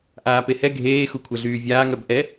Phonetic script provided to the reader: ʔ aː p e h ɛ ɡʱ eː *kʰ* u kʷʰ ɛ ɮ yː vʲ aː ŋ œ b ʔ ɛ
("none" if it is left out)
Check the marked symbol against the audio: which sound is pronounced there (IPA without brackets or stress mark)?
x